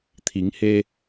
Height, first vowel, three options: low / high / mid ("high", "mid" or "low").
high